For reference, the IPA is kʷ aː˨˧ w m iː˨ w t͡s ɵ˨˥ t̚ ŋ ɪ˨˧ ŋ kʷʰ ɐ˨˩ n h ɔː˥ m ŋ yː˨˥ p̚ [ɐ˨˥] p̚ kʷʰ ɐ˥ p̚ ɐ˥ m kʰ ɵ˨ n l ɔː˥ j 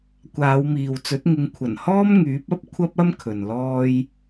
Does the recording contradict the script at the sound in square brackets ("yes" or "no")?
yes